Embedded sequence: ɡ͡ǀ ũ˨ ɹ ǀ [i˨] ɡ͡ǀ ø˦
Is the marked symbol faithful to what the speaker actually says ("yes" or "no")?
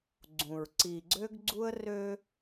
yes